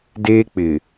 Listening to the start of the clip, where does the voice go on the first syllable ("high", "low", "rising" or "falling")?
high